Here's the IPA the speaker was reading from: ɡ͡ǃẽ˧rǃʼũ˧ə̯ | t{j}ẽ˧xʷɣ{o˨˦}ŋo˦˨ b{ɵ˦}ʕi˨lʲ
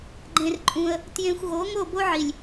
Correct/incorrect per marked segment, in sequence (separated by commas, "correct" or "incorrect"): correct, correct, incorrect